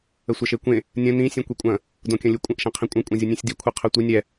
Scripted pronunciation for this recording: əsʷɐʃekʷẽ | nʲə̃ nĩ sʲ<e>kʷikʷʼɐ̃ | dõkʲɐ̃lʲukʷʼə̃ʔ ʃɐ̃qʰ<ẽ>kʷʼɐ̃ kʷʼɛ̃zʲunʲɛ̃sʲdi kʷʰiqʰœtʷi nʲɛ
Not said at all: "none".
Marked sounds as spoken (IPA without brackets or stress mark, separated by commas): ẽ, ĩ